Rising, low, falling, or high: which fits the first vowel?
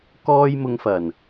high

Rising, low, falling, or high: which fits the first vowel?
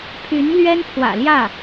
rising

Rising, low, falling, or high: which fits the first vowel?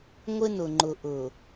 high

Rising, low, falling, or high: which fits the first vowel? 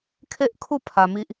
high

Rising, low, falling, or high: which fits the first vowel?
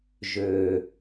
low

